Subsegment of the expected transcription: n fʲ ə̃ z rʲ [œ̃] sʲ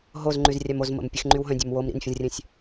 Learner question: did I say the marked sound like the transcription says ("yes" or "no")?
yes